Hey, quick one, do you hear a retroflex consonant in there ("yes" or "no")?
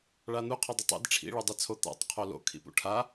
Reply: yes